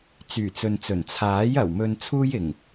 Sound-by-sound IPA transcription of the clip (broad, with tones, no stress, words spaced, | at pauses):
t͡syː˨˩t͡sɵ˨nt͡sɵ˨˩n t͡sʰaː˨˥j ɐ˨˩wmɵ˧nt͡sʰuː˥j ɪ˨˩ŋ